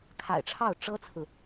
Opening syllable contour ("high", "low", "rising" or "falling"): low